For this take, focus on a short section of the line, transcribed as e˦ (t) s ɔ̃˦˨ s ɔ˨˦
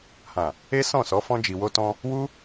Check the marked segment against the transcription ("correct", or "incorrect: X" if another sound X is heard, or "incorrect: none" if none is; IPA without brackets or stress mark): incorrect: none